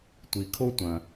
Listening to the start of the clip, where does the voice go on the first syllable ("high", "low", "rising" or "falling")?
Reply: low